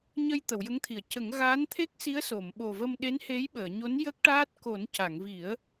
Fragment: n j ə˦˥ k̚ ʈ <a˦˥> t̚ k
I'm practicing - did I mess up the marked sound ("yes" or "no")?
yes